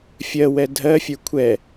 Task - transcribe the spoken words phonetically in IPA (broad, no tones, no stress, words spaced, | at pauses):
fʲɜwɛ dʱɜfʲə˞ kʷʰɛ